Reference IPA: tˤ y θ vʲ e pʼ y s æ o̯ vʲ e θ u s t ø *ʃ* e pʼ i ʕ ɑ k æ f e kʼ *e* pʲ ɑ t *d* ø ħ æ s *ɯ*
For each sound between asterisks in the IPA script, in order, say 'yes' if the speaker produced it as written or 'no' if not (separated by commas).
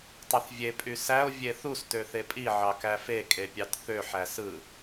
no, yes, no, yes